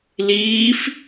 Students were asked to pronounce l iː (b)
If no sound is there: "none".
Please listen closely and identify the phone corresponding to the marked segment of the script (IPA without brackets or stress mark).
f